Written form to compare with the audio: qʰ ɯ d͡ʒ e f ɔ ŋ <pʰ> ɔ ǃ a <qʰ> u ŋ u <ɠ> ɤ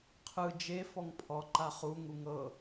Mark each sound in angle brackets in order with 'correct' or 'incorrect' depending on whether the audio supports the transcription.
correct, incorrect: χ, incorrect: ŋ

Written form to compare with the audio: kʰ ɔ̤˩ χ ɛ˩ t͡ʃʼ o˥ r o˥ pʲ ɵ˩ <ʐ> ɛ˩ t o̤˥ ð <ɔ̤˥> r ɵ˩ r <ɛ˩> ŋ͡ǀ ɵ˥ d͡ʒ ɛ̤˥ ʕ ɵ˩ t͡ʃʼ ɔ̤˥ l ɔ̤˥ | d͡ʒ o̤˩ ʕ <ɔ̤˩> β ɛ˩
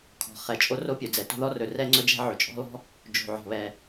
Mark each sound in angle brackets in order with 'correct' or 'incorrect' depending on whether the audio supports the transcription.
incorrect: d͡z, incorrect: ɔ˥, incorrect: ɛ˥, correct

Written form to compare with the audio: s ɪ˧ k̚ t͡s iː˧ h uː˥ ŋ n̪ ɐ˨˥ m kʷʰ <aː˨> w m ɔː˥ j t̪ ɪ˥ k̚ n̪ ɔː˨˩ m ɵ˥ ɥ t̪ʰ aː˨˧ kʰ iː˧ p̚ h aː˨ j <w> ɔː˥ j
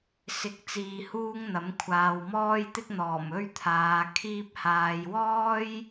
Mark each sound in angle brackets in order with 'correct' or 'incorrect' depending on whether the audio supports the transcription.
correct, correct

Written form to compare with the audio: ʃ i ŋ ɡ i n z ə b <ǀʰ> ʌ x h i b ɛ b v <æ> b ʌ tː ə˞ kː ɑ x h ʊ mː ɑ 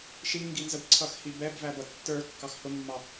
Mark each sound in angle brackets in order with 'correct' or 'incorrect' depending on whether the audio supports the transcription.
correct, correct

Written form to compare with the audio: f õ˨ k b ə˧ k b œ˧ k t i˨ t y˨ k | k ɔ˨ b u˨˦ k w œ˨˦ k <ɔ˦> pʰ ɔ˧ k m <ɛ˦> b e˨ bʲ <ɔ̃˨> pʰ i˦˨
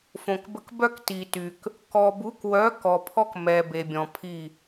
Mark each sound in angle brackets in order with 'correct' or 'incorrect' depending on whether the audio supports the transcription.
incorrect: ɔ˨, incorrect: ɛ˨, correct

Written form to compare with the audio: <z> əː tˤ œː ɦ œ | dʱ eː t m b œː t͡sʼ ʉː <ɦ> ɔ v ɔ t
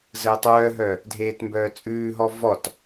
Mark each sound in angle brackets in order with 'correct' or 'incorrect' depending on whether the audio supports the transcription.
correct, correct

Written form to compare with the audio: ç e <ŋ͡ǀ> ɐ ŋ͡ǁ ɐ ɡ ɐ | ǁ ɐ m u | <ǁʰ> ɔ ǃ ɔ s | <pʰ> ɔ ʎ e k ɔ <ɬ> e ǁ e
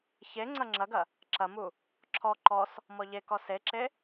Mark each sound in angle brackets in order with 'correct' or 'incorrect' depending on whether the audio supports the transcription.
correct, correct, incorrect: m, incorrect: s

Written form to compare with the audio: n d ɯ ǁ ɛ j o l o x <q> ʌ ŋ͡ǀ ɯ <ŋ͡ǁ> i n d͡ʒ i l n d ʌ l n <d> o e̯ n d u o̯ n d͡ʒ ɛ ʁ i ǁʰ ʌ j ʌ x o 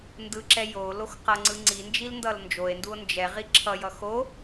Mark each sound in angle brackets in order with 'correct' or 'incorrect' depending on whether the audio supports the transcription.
correct, incorrect: ŋ͡ǀ, incorrect: d͡ʒ

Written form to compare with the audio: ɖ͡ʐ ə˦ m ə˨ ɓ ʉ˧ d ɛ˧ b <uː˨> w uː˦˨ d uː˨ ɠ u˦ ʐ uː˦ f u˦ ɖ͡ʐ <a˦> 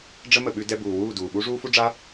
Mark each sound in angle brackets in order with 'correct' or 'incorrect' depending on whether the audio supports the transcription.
correct, correct

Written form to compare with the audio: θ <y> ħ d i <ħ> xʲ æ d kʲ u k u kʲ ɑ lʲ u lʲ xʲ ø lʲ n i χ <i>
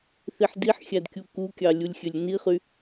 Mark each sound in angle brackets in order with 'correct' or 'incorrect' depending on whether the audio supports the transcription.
incorrect: i, correct, incorrect: y

